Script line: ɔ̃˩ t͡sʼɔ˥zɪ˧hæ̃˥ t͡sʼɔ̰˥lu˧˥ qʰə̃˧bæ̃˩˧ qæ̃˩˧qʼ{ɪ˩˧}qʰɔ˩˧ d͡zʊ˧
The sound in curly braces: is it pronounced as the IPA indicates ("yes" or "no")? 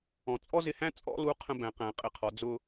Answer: yes